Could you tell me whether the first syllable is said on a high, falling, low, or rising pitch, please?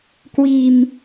low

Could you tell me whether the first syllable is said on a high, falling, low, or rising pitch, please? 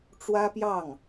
high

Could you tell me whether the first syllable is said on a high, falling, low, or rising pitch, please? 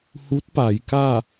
rising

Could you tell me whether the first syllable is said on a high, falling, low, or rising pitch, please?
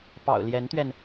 low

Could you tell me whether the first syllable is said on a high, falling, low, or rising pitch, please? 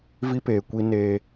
high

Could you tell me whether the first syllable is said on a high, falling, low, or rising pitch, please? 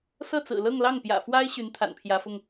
falling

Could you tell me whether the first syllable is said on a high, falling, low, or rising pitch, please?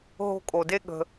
high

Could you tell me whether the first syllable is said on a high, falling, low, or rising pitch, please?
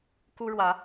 high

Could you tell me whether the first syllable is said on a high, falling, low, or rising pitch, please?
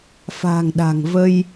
low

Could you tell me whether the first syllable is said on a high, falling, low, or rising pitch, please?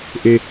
high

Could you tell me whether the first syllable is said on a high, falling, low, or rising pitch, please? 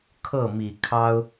falling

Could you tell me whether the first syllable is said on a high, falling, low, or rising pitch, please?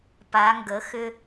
rising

